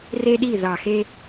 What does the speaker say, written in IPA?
re˥ɗi˥˨ ðɑ˧˩xe˥

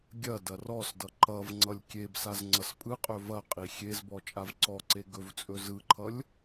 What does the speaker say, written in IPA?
ɡʲɐ dɐrɔsdʌ ǃʌvŋ͡ǀʌlʲ kʲebsaz ŋ͡ǀʌspʼɯqʼɵ vɐqʼi xʲezbɔ t͡ʃʼavǀɔǀe ɡɵvt͡sʼɵ zɯǃʰʌlʲ

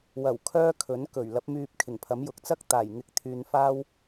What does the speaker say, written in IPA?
wɐ˨˩w kʰœː˥kʰɵ˨˥nkɵ˨˩ɥ lɐ˨˥p̚myː˧p̚kʰɪ˨˩ŋpʰɐ˨˥m jʊ˨k̚t͡sɐ˥k̚ t̪aː˨˩jŋɪ˨˥k̚t̪ʰyː˨n faː˥w

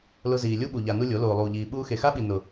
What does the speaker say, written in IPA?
lʊ˧ziː˨lʲu˦ɓu˨ ʎa˨ nu˧ lʲo˨˦ loː˨lˠuː˨ʎiː˨ ɓuː˧xe˨xa˦ɓi˨ nʊ˨

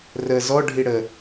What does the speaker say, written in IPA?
rə zɔɖʱi ɽə

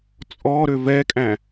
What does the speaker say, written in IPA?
t͡sʼɔɾø vɛkʼæ̃

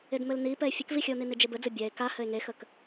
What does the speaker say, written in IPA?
edmɘlnipɛe̯ fʲəkvixʲəo̯ni nid͡ʒebɘd͡zɘ bʲɛe̯ ka hɘe̯ŋexək

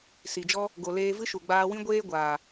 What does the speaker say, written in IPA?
si˨d͡ʒɔ˦ | ɡo˨leː˧vɨ˦ʃu˨ ɡ͡baː˧wĩ˦ ɡʷeː˦ ɡʷaː˨

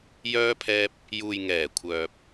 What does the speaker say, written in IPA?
jœː˧pʰɛː˧p̚ | juː˨jŋɛː˨˩kʷʰœː˨p̚

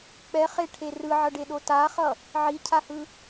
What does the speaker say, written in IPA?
k͡pɛχeʈʰe rɯʕʌɖeɗo taχʌ | ʕicʰahɯ

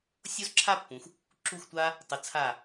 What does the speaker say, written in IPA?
sʲo˥zǁʰa˥pːũ˩˧x | ǁu˧˩xtʷa˧ | tˤɯ˩˧t͡sʰa˧˩

